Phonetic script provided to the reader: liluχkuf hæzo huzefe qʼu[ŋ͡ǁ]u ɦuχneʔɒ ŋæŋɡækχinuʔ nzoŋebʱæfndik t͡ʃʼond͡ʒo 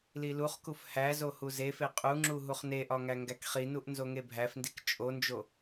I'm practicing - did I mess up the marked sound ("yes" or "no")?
no